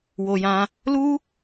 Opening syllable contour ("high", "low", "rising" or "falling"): low